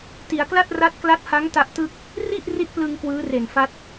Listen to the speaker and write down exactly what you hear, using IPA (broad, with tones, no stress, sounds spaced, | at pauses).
t i˩˦ a̯ k l a˥˩ t̚ r a˦˥ t̚ k l a˦˥ t̚ h a˦˥ ŋ t a˦˥ ʔ t ɯ˥˩ k̚ | r i˥˩ ʔ r i˥˩ t̚ p l ɯ˧ ŋ k w ɯː˦˥ r e˨˩ n f a˦˥ t̚